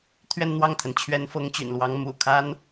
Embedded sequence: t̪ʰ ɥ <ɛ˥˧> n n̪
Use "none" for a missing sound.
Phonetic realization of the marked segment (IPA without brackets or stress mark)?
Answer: ɛ˥˧